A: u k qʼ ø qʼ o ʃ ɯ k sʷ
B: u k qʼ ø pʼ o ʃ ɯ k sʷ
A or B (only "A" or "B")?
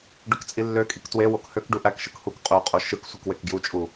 A